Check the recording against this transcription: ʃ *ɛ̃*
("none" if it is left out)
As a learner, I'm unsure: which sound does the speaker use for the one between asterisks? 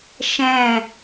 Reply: ɛ̃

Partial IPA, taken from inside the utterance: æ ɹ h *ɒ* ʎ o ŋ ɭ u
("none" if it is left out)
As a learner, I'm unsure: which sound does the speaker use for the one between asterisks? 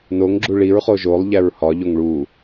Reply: ɒ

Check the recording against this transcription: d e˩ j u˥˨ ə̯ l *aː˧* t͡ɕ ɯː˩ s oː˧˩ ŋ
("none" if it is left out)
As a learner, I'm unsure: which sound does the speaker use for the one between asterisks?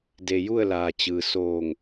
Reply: aː˩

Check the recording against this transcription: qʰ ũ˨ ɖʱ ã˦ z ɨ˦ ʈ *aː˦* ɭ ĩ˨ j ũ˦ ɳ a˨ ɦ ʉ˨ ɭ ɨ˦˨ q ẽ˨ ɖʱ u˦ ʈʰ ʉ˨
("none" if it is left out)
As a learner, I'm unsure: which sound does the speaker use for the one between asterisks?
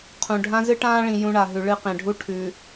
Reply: ãː˦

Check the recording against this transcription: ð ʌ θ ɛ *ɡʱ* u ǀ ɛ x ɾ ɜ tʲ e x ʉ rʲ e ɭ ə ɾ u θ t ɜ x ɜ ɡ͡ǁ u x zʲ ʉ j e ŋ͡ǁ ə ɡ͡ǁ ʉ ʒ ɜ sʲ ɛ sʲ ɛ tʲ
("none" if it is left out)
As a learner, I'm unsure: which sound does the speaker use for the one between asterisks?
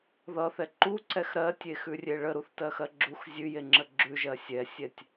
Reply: ǃ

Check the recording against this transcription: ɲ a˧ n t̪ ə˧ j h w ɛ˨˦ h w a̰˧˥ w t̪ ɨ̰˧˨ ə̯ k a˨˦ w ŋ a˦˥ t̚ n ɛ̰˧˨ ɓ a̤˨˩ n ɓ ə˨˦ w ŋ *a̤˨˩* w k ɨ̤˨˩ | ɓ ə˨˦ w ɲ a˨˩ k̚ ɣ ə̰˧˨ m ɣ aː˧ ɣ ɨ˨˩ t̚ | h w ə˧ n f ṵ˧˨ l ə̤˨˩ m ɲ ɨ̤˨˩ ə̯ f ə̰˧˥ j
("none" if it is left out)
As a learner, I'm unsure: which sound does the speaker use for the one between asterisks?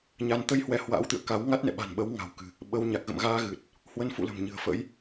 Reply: a̤˨˩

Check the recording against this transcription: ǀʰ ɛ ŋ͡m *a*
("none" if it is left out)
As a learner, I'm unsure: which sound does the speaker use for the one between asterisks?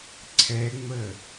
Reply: ə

